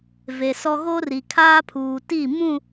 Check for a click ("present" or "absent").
absent